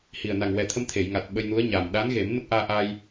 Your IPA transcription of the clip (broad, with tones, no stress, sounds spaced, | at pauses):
h i˨˩ ə̯ n a˨˩ ŋ w ɛ˨˩ t̪ʰ ə˧ m t̪ʰ e˨˩˨ j ŋ a˨˩ t̚ ɓ ə˧ j n u˧˥ ə̯ ɲ a˨˩ m ɗ a˧˥ n ɣ e˨˩˦ m n ə˦˥ k̚ ʔ aː˧ ʔ a˧ j